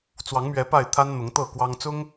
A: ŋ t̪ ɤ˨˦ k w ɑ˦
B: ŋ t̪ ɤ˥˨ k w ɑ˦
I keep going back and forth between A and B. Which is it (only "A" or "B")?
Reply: B